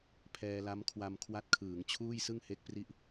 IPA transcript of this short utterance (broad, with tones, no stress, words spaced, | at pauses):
pʰɛː˧la˦˥mkʰwa˧m kʰwa˦˥t̚kʰɯː˩˦ŋ t͡ɕʰuː˥˩jsɯ˥˩ŋhe˦˥k̚pri˦˥ʔ